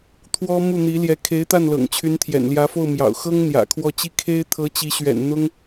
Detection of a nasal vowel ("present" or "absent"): absent